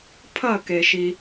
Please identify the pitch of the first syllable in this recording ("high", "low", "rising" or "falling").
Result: falling